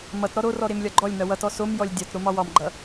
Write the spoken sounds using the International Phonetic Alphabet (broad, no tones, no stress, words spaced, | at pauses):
mʌt ɾɔɾorɔ ɾemlʲɒɡ͡ǃɔlʲnʌ wʌtɔ somjɔlʲ dʲɒt ɾomɒwɒmɡ͡ǃʌ